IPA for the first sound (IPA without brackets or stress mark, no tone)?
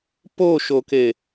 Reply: p